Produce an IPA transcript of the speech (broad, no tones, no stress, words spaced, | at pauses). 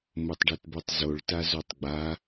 motˤɖɛtbotˤzoɭ tazotˤɡ͡ba